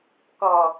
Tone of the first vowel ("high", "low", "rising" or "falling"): low